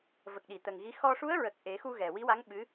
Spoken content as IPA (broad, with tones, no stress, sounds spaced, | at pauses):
v ə˨˩ k̚ ɗ i˨˩˨ t̪ ə˨˩ ŋ ɣ i˧˥ x ɔ˧ ʂ u˧˥ ə̯ ɹ ə˨˩ k̚ ʔ e˨˩˦ x u˧ ɣ ɛ˨˩ w i˧˥ w a˧˥ ŋ ɓ ɨ˧˥